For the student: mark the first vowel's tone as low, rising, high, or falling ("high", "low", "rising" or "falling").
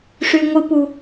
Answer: low